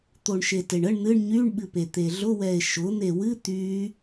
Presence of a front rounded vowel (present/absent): present